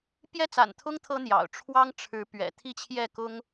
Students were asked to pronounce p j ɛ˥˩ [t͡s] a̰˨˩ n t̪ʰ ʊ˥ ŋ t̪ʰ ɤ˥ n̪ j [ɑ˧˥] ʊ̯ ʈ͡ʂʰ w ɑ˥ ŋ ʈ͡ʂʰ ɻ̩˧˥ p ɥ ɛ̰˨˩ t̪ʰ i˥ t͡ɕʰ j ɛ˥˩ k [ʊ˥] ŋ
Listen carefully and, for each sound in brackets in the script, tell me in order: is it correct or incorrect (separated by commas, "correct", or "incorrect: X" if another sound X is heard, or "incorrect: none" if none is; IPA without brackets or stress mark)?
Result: correct, incorrect: ɑ̰˨˩, correct